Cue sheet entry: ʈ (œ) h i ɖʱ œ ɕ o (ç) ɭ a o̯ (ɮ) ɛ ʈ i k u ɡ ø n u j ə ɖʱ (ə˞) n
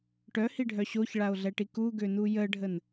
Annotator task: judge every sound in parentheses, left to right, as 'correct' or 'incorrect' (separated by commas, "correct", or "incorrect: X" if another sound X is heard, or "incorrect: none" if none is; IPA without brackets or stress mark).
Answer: correct, correct, correct, incorrect: ə